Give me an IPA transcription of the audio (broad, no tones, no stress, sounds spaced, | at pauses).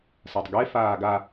s a tˤ ɡ e f aː ɡ a